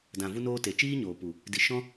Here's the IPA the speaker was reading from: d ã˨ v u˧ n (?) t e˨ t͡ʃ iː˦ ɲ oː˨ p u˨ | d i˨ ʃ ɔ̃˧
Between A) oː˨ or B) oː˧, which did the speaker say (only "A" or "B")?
B